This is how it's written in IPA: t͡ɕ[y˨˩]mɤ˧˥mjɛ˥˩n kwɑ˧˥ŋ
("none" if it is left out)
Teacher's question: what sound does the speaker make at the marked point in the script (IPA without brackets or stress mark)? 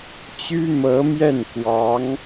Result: y˥